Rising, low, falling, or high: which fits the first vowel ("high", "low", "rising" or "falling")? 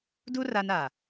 high